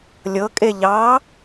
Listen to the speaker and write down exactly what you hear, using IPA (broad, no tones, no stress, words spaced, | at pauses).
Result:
lʲɤ kʼeʎɑ